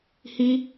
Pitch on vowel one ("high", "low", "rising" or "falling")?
high